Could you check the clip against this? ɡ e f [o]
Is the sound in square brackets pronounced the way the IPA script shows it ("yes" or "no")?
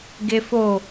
yes